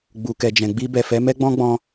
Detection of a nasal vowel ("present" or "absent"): present